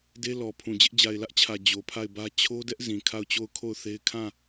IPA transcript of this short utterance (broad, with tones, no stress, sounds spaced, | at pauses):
d e˦ l ɔ˨ pʰ ũ˨ d͡ʑ ɪ˦ ʔ d͡ʑ a˨ ɪ̯ l ä˦ ʔ t͡ɕʰ ä˨ d͡ʑ o˨ pʰ a˦˨ ɪ̯ b ä˦ t͡ɕʰ o˦ d ɛ˦ ʔ z ĩ˨ kʰ a˦˨ ʊ̯ t͡ɕ o˦˨ ʊ̯ kʰ o˦˨ ʊ̯ θ e˦ ɪ̯ kʰ ã˦˨